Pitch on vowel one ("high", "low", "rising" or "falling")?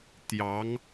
rising